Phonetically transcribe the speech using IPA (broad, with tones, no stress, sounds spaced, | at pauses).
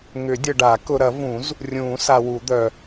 ŋ ʏ˨˩˦ dʲ ə˨ ɖ a˨˩˦ k ʊ˨ ɾ ɐ˨˩˦ v ũ˨˩˦ z | rʲ ũː˨˩˦ s a˨ w u˨˩˦ d̪ œ˨